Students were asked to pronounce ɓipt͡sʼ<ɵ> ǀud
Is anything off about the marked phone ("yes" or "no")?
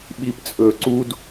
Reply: no